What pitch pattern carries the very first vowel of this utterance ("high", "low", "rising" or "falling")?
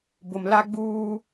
low